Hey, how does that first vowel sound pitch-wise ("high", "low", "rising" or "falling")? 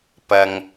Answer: low